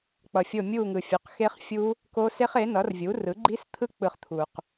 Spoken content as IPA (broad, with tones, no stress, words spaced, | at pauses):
k͡pʌ˨fʲo˦˨ mʲu˦˨ ŋɯ˨fʲu˩˥qxe˦˥χ fʲu˦˥ | ko˦˥se˦˥χ e˩˥nʌ˩˥rvʲu˩˥rɯ˩˥ ɡ͡ǃi˦˥st̪ʰɯ˦˥ k͡pɯ˦˨χt̪ʰu˨q